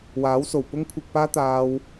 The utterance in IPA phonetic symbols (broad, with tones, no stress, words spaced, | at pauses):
waː˨˥wso˨˩w pʊ˥ŋkʷʰɪ˧k̚paː˥ t̪aː˥w